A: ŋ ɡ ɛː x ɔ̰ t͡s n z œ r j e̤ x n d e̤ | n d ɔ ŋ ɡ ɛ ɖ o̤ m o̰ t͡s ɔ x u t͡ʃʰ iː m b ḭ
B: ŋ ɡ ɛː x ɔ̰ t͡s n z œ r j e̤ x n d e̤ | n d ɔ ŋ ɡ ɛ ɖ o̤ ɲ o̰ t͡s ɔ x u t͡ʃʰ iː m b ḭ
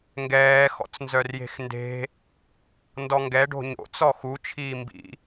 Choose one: B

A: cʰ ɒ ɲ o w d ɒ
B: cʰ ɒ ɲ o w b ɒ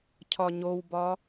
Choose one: B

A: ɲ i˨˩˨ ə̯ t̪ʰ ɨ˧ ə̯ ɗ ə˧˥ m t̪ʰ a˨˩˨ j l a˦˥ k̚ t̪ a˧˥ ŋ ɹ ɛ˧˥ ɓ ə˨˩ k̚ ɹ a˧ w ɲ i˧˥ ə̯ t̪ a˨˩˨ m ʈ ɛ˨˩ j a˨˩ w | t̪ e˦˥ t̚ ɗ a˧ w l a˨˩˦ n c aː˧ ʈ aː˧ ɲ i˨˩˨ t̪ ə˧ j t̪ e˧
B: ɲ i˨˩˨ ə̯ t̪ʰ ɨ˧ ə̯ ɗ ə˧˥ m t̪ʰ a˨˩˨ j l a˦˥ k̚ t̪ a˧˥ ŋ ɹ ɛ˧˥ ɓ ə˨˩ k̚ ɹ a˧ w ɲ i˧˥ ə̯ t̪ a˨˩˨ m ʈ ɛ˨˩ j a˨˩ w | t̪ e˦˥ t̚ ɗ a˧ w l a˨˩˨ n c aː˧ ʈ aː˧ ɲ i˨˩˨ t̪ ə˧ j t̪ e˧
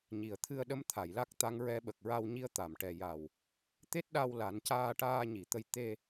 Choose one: A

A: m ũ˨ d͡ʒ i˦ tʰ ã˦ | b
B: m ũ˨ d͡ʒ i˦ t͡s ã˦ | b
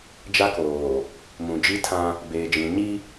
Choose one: A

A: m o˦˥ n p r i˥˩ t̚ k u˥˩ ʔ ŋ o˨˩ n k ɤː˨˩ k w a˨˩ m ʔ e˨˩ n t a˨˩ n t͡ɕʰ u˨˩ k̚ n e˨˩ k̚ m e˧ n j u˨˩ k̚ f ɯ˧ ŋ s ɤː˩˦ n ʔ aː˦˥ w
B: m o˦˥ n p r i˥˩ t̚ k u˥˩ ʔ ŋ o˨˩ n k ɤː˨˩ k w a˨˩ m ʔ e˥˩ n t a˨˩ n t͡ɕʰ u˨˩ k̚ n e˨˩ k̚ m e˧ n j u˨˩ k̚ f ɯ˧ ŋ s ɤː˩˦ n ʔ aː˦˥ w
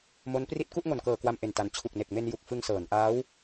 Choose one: A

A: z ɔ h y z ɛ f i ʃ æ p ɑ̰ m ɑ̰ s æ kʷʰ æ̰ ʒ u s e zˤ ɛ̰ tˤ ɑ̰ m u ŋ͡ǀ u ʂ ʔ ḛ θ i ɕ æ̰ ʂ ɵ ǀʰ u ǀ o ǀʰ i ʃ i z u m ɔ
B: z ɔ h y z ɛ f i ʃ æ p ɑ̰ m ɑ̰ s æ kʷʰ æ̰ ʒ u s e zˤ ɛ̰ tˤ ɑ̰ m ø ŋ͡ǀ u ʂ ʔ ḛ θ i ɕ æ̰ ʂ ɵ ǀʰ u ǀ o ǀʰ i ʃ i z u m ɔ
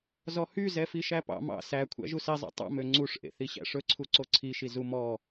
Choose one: B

